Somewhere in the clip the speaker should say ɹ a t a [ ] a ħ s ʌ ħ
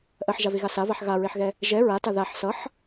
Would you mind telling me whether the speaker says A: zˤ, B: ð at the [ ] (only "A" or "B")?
B